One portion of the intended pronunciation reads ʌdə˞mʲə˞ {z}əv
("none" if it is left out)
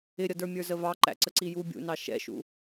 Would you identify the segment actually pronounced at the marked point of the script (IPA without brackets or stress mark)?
z